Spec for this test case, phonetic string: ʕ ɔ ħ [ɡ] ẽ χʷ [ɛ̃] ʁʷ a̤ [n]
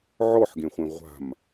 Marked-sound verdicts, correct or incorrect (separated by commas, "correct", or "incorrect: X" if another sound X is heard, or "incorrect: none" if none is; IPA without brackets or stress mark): correct, incorrect: ẽ, incorrect: m